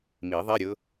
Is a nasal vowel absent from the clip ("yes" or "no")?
yes